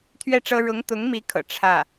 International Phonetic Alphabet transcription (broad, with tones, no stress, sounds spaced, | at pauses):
t̪ʰ ɥ ɛ˥˩ ʈ͡ʂ ɤ˥ ɻ ʊ˧˥ ŋ t̪ ʊ˧˥ ŋ m i˧˥ kʰ ɤ̰˨˩ ʈ͡ʂʰ ä˥˩